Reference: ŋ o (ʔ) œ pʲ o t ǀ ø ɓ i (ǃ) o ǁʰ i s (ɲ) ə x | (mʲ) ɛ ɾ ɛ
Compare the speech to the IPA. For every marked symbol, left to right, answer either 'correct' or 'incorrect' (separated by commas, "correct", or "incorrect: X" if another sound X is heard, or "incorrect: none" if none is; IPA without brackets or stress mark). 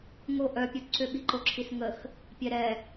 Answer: correct, correct, incorrect: ŋ, incorrect: pʲ